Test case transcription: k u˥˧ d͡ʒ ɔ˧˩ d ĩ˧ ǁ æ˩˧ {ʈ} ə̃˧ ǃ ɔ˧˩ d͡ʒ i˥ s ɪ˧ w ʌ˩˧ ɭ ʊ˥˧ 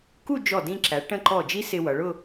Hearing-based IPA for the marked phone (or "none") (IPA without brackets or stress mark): ʈ